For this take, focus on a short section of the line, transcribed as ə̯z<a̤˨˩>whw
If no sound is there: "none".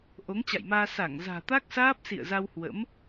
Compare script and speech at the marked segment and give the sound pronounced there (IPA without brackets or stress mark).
a˧